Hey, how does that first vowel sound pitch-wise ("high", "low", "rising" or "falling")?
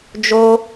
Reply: high